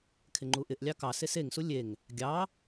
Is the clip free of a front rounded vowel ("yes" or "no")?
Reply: yes